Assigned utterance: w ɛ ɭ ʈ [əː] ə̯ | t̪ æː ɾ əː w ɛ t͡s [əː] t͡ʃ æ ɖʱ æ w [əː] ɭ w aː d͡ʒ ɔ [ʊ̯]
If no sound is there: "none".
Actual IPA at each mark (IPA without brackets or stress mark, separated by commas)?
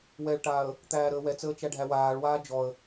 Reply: aː, əː, aː, ə̯